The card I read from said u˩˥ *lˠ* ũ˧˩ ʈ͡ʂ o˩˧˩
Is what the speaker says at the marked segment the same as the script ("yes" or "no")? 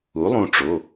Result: yes